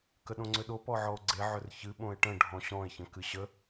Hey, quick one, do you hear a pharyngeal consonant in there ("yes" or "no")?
yes